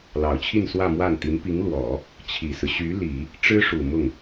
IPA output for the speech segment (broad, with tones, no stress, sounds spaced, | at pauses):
l ɑ˨˩ ʊ̯ t͡ɕʰ i˥˧ n s w ä˥˧ m w a˥˩ n t̪ i˧˥ n p i˧˥ ŋ l w ɔ˨˩˦ | t͡ɕʰ i˨˩ s ɹ̩˦ ɕ y˧˥ l i˨˩˦ | ʈ͡ʂ ɻ̩˥ ʂ u˨˩ m ʊ˥˩ ŋ